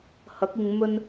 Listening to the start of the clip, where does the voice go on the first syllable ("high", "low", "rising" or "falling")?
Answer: rising